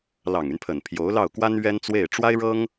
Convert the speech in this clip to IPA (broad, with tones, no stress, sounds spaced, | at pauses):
l ɑ˨˩ ŋ y˦ n pʰ ə˨˩ n pʰ j o˧˥ ʊ̯ l ɑ˥˩ ʊ̯ k w a˥ n ɥ ɛ˥ n t͡s w e˥˩ ɪ̯ ʈ͡ʂ w a˥ ɪ̯ ɻ ɤ˥ ŋ